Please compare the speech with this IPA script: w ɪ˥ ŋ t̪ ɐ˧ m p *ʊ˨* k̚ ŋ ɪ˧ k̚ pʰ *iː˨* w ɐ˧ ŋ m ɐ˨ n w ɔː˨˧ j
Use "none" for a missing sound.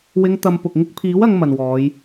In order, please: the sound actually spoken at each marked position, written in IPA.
ʊ˨, iː˨˥

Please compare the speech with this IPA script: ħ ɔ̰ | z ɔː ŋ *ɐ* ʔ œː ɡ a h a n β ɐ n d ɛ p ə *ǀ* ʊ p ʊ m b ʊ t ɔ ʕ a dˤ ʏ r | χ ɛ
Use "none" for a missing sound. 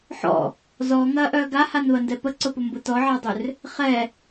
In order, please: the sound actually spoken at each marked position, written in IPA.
ɐː, ǀ

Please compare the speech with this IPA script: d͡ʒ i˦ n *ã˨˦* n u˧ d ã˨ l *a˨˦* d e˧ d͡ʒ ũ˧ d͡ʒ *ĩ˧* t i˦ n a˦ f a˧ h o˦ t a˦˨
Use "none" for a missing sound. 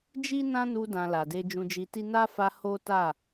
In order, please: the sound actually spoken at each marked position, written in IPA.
ã˦, a˨, i˧

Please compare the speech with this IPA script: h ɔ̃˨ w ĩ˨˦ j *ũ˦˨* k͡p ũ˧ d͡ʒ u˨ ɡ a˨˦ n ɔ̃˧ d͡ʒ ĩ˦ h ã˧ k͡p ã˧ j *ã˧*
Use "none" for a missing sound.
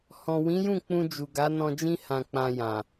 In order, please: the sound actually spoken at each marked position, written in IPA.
ũ˦˨, ã˨

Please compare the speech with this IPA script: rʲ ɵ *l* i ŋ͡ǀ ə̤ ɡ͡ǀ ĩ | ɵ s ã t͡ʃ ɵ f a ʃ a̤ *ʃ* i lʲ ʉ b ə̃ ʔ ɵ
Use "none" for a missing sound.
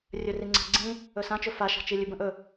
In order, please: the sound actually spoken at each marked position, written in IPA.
r, t͡ʃ

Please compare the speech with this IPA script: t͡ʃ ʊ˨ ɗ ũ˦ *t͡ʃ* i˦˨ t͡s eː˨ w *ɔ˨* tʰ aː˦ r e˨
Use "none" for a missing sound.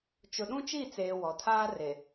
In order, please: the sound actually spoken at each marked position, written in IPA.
t͡ʃ, ɔ˨

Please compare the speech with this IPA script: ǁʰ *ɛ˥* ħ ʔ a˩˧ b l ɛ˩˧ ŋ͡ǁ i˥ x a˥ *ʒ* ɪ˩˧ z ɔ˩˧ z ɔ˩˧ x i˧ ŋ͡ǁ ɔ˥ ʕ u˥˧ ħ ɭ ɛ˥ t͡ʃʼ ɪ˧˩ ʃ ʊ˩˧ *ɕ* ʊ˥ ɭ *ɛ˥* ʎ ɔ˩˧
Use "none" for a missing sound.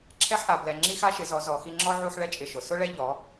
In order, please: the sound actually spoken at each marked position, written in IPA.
ɛ˥, ʃ, s, ɛ˥

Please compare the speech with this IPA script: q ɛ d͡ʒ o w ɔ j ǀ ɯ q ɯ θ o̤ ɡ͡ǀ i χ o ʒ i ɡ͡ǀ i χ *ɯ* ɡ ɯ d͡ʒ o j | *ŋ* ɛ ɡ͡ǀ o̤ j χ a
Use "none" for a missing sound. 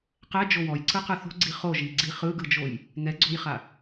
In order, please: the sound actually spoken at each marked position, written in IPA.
ɯ, ŋ

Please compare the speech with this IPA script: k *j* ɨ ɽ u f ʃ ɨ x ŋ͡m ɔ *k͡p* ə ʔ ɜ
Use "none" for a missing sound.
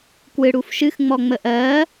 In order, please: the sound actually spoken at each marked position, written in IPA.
w, ŋ͡m

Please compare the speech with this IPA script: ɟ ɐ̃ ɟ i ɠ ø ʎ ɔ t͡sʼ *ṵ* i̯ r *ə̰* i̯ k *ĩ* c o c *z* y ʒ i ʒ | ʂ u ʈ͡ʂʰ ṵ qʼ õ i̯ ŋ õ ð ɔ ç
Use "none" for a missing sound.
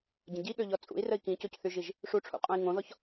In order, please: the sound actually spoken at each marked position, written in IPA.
ṵ, ə, ĩ, θ

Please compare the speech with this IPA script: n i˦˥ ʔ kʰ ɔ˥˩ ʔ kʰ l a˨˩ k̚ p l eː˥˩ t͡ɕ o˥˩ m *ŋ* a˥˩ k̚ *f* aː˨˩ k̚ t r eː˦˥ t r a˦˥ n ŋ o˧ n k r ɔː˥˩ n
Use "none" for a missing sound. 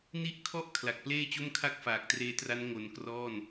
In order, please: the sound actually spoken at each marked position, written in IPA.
kʰ, f

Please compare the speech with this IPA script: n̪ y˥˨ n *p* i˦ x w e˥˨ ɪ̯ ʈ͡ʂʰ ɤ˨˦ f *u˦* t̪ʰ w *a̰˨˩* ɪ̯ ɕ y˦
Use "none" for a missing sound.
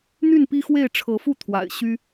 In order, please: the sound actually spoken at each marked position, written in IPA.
p, u˥˨, a̰˨˩

